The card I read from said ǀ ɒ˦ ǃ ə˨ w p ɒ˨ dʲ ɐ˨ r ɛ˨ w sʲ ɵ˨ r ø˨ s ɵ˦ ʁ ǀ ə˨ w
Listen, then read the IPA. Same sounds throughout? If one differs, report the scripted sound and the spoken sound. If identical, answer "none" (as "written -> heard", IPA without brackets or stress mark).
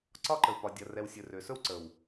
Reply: ʁ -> w